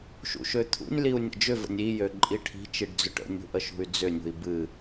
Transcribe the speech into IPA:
ʃṵʃøt̪ʰṵnʲliu̯ nʲə̰d͡ʒʏvə̰nʲ ijø ǃʼiʈʰi̤t͡ʃiɖ d͡zʏʈə̰nʲṳ ʔəʃṳy̯d͡zʏnʲṳi̯ bɨ

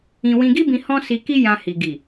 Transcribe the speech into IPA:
ĩ˧ wĩ˧ɡi˦bĩ˧ hɔ̃˦si˧ki˦ jã˧hi˨ ɡi˨

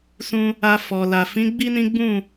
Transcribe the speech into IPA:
sũ˧ | a˧ fɔ˨la˨ fĩ˨˦ ɡ͡bi˦nĩ˦ɡ͡bũ˦˨

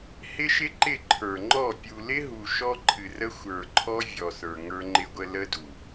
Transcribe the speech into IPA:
hɪ˦ʃɪ˦ǃɪ˦˨ ǃʰə˞˨ŋ͡ǃɔ˦˨ pʲu˨lɪ˦ɦu˨ ʃɔ˦ǃʰɨ˨rə˦ xʷə˞˨ǃʰɔ˦ vʲɔ˨sə˞˨ ŋə˞˦ŋ͡ǃɪ˦ɡʷə˦ lə˦du˨

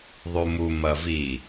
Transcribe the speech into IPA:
ðˤumu mɐvi

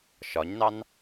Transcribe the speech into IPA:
ʃɒɲnɑn

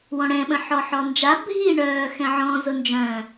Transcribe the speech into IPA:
wɔ̃ɽɛ̃ɓə̃ ħɔħɔnd͡ʒa bʱi ɳœːxɛ̃ʕɔ̃ zʊnd͡ʒœ̃

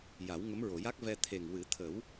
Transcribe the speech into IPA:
ja˨˩˦wŋə˧˥mɹo˨˩˨ ja˦˥k̚vɛ˧ t̪ʰe˨˩ŋwɨ˨˩˦t̪ʰə˨˩˦w

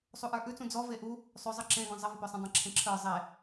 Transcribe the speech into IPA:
sˤuʔə˞ʔʉt͡sũ d͡zɔ veʔu | sˤʉzˤə ǁẽɡɔ̃ zˤəvəpœsˤə̃ dˤẽǁʰẽǁʰə˞ zˤe

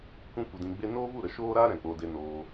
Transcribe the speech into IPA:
kʷĩ˦kʷə˧dĩ˧ɡ͡be˦ noː˦vu˦˨ɾə˨˦ ʃoː˦ɾa˦ ɾɛ̃˨k͡po˧de˧ noː˧

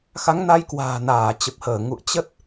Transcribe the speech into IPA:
xa˨˦ŋna˨˦jkwa̤ː˨˩ naː˧˩t͡ɕə˨˩p̚həː˧˩ ŋṵ˧˨ə̯t͡ɕə˦˥t̚

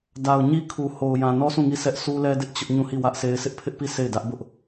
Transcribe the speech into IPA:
da˨ʊ̯ɲi˦kʰu˨ ho˨ʊ̯jã˨nɔ˦ sũ˦˨ŋi˦˨sʰɛ˦ʔ su˦lɛ˦dɪ˦ʔ t͡ɕʊ˦ʔ ɲũ˦˨hi˦˨wä˦ʔse˦ɪ̯ sɪ˦ʔpʰɪ˦ʔpi˦˨ se˦˨ɪ̯dä˦ʔbʊ˦ʔ

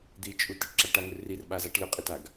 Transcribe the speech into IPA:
d̪it͡ʃʼu tiʈǁaʈaŋʏ rirɓazaʈ lʏqʼitaɡ

